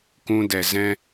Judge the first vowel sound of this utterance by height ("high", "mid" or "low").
high